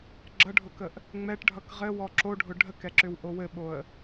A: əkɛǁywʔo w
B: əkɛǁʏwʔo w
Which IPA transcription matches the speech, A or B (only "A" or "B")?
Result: B